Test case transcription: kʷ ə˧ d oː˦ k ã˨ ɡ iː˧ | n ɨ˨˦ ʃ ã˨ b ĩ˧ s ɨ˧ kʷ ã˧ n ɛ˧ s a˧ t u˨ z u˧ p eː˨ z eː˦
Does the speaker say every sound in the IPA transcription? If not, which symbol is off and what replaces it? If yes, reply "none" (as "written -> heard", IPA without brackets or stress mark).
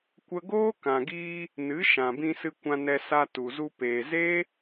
d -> ɡ